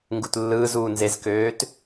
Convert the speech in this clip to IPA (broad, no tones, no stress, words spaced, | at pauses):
ŋɡutlːɯːzuː nzezkøːt